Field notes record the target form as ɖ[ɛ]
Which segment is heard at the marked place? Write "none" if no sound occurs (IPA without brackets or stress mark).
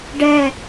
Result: ɛ